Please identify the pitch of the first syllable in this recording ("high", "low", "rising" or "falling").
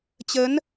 rising